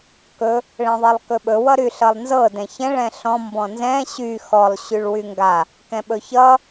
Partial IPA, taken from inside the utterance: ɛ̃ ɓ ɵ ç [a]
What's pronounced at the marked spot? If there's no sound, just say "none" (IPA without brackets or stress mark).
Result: ʌ